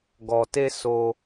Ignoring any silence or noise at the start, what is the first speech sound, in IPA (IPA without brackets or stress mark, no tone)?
ɡ